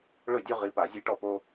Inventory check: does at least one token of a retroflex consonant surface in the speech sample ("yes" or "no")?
yes